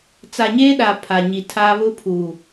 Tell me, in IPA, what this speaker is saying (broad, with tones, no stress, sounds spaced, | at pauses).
t͡s a˨ ɲ eː˦ ɗ a˨ pʰ a˨ ɲ i˨ tʰ aː˦ β ʊ˦ pʰ u˨